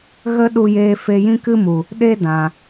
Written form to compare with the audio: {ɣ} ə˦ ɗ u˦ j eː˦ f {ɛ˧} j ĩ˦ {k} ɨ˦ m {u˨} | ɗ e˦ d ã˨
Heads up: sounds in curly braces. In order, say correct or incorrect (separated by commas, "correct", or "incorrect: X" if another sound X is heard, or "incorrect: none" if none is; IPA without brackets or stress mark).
correct, incorrect: e˧, correct, correct